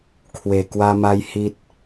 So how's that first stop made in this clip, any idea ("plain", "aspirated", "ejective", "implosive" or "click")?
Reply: aspirated